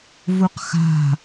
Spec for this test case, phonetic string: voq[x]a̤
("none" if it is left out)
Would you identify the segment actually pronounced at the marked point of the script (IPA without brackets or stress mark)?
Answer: x